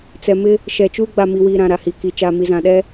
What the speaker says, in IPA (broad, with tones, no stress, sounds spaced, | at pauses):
t͡s ɛ˨ m ɪ˦ | ʃ ɛ˨ t͡ʃ uː˦ ɡ͡b a˨ m i˨ w iː˨ ɾ ã˨ ɾ a˨ h i˨ k i˨ t͡ʃ aː˨ m i˨ z ã˨ ɗ ɛ˦